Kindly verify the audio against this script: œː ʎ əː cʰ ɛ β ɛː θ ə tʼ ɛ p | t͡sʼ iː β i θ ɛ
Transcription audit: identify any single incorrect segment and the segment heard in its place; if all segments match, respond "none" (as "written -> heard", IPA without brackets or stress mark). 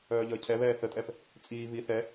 none